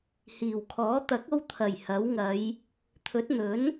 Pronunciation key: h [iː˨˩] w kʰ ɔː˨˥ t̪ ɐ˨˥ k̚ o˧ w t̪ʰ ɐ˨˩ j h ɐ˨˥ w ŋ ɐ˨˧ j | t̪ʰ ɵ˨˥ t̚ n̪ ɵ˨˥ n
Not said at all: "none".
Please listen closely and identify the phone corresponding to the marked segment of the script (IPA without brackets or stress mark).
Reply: iː˨˩